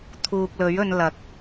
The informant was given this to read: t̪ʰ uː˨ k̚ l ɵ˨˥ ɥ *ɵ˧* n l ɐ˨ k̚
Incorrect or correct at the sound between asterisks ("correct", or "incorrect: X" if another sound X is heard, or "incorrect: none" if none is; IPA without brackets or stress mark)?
correct